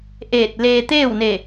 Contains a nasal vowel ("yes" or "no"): no